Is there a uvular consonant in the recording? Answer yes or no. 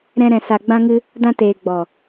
no